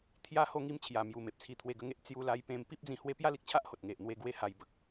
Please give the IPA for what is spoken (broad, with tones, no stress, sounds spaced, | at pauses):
t̪ʰ j a˧ h o˧ ŋ i˧ m t͡ɕʰ j a˨˩ m j u˨˩ m e˨ p̚ t͡sʰ i˧ t̪ʰ w e˧ ɡ ə˧ ŋ e˦ ʔ t͡s j u˧ l a˧ j p ẽ˧ m p i˦ p̚ d͡z ĩ˧ h w e˦ p j a˦ l i˨ k̚ t͡ɕʰ a˦ ʔ h o˨ t̚ ŋ e˨ ʔ n̪ w e˧ ɡ w e˦ h a˧ j b ə˨ k̚